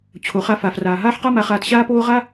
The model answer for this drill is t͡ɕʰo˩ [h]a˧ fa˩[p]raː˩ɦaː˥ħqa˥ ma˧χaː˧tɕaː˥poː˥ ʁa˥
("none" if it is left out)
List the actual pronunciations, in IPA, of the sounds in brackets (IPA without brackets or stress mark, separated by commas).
χ, f